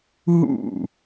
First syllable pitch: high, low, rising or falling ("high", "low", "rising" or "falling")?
falling